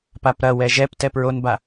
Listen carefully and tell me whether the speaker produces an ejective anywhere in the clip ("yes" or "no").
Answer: no